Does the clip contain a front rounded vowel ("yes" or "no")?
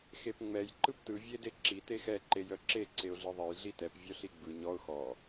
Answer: yes